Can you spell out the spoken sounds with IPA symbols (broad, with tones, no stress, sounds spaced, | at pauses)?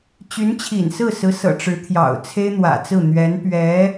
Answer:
t͡ɕ y˧˥ n t͡ɕʰ ḭ˨˩ n s ɹ̩˥˩ s ɹ̩˧˥ s ɤ̰˨˩ ʈ͡ʂ ɻ̩˧˥ t̪ʰ j ɑ̰˨˩ ʊ̯ t͡sʰ e˥ ɪ̯ n̪ w ä̰˨˩ t͡s ɹ̩˥˩ n̪ ɥ ɛ˧˥ n p ɥ ɛ˧˥